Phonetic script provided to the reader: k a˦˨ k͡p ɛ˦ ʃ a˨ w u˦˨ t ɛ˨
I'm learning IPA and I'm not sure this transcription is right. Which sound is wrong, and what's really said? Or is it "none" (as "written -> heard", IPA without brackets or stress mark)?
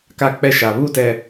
w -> β